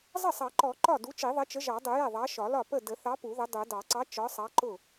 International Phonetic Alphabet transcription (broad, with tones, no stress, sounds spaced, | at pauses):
zˤ ə˥˩ sˤ ɑ˨˩˦ ǃ ɔ˨˩˦ ǃ ɒ˥˩ d u˨˥ t͡ʃ i˨˩˦ ðˤ ə˨˥ t͡ʃ ə˨˥ ʒ ɑ˨˩˦ dˤ ʊ˨˩˦ j ɛ˥˩ ðˤ ɑ˨˥ ʃ ɒ˨˩˦ l ɒ˥˩ p ə˥˩ d ə˨˩˦ θ ɑ˨˥ p u˨˩˦ ð ə˨˥ dˤ u˨˩˦ d ɑ˨˩˦ ǀ ɑ˨˥ t͡ʃ ɒ˨˥ sˤ ɑ˨˥ ǃ ʊ˥˩